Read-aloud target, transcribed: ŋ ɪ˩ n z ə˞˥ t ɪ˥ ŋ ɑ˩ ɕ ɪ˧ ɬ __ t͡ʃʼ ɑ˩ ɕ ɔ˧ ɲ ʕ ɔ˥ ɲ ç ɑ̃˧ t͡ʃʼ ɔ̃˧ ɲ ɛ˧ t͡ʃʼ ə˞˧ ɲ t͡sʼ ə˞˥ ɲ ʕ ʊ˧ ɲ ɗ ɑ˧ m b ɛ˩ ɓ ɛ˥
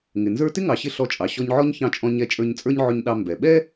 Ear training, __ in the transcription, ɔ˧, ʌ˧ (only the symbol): ɔ˧